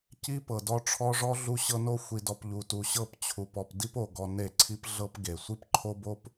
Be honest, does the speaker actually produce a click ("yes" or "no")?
yes